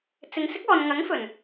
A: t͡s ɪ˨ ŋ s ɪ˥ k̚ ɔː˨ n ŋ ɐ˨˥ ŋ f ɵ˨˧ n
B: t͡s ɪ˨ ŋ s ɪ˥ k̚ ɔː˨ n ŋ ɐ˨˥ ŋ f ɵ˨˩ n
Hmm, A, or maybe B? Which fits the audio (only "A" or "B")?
B